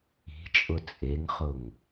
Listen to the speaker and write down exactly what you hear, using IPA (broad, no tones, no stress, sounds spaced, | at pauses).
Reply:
i̤ t͡ʃʼ ʊ t͡sʼ e ŋ χ ʊ ŋ